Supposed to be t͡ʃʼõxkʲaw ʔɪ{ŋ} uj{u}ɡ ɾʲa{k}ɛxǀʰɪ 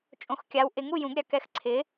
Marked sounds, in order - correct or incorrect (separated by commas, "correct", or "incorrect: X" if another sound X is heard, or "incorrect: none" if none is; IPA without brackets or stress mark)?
correct, incorrect: ũ, correct